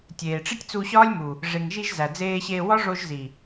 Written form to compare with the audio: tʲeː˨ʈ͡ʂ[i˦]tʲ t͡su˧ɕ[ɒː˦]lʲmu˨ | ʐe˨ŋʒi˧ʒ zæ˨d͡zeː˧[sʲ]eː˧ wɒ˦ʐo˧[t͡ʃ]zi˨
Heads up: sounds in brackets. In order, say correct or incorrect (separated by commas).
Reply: correct, correct, incorrect, incorrect